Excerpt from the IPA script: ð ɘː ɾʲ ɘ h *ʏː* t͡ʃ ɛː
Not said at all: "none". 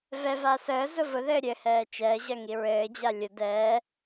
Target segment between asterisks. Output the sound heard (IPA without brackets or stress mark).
ɛː